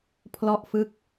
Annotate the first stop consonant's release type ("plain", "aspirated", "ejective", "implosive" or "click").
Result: aspirated